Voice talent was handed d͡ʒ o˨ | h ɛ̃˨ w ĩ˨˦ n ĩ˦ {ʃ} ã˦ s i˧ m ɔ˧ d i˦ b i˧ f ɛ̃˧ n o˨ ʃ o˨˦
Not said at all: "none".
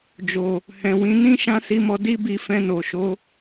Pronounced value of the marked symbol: ʃ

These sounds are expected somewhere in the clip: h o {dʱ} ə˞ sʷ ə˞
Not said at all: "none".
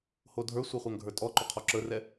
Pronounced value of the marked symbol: dʱ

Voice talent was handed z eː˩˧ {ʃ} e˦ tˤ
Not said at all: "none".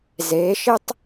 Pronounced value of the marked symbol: ʃ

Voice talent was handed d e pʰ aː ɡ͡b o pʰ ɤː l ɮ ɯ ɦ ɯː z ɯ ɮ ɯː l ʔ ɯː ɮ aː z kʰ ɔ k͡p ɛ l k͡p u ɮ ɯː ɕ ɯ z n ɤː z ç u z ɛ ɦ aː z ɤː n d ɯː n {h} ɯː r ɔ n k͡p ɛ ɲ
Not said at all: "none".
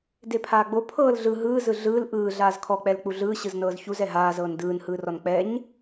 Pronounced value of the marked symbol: h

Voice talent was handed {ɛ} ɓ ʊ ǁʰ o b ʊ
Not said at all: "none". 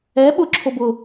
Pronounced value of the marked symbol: ɛ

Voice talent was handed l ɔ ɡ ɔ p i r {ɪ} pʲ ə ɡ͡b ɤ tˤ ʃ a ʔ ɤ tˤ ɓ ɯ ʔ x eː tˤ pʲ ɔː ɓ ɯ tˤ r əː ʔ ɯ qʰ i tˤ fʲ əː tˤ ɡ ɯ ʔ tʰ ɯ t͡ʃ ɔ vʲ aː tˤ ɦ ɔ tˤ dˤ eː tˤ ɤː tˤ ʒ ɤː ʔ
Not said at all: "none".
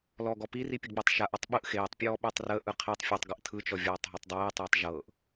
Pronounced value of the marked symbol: i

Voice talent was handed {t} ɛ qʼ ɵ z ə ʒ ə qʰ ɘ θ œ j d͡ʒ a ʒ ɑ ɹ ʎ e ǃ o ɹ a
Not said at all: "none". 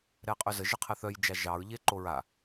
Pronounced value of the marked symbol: ɾ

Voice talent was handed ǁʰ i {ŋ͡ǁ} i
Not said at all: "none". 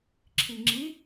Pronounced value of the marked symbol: ŋ͡ǁ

